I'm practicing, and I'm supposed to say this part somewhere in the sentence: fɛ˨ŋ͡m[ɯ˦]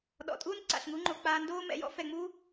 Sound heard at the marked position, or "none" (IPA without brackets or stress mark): u˦